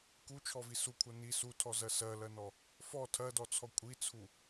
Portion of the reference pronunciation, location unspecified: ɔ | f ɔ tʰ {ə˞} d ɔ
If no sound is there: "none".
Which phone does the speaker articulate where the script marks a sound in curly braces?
ɜ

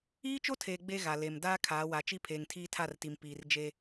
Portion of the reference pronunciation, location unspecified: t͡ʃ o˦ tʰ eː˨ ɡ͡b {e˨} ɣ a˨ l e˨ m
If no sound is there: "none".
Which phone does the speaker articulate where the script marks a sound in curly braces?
e˦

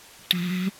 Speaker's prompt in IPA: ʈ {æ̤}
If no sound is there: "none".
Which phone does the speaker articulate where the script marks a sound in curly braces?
æ̤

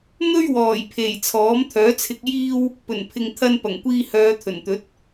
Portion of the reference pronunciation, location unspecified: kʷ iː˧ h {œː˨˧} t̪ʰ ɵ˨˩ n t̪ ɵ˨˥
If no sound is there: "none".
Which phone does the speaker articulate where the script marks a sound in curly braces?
œː˨˧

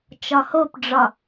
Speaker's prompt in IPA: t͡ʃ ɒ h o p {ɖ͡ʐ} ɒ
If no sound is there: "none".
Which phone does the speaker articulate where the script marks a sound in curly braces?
ɖ͡ʐ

